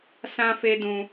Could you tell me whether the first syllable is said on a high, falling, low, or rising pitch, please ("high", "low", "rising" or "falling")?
high